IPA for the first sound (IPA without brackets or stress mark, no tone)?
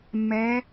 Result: mː